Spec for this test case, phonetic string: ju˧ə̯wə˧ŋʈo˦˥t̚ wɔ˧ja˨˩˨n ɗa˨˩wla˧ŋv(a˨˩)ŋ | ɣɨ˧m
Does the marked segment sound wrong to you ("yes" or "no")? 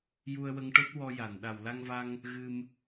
yes